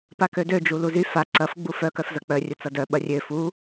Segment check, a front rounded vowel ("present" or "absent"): present